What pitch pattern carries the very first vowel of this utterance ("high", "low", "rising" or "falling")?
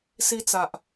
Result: high